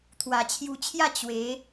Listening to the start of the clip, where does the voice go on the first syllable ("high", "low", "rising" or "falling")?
low